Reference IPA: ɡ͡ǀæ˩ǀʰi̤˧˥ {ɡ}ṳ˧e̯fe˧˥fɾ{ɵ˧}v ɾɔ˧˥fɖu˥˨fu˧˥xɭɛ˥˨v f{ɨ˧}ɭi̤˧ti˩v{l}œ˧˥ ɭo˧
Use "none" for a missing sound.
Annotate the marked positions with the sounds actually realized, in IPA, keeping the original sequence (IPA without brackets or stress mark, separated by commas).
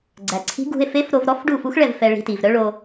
ɡ, o˧, ɛ˧, ɾ